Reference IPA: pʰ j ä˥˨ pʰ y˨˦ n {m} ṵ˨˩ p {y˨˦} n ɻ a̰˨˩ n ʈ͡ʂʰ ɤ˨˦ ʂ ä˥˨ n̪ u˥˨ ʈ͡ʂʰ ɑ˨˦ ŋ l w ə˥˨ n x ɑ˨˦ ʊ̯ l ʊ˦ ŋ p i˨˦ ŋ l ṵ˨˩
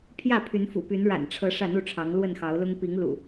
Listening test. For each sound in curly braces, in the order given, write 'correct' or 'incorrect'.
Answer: incorrect, correct

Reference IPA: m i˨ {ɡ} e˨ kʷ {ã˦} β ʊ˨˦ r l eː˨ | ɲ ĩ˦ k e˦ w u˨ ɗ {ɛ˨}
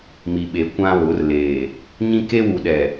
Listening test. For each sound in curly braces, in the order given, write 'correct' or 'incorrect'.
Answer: incorrect, correct, correct

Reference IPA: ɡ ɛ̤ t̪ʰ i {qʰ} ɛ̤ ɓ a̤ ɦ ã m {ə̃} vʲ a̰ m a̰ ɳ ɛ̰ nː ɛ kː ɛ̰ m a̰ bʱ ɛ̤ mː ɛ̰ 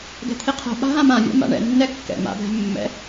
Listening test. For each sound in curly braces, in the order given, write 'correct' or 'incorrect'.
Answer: correct, incorrect

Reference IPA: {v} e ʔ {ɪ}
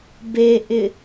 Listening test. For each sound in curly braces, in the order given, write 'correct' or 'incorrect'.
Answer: incorrect, correct

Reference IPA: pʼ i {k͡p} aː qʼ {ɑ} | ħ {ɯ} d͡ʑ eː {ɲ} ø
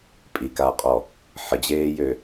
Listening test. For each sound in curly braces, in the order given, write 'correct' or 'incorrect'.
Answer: incorrect, incorrect, incorrect, incorrect

